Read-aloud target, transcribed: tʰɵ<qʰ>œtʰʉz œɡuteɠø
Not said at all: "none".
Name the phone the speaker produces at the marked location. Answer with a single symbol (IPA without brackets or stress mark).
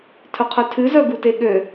qʰ